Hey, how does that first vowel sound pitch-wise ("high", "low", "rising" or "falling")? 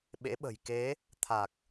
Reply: rising